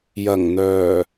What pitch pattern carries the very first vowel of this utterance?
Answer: low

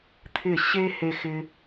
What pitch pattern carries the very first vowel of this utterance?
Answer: falling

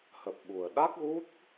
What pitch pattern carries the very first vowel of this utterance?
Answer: low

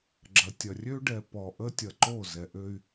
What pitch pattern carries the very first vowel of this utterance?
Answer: low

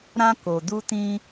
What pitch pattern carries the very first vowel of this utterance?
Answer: high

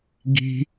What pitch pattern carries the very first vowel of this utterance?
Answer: high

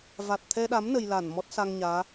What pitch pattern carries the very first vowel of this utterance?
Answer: low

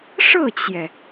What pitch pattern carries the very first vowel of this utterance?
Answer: falling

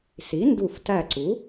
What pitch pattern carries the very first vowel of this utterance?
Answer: rising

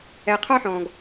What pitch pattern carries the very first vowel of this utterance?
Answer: low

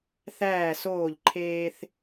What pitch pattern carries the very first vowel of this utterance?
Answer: falling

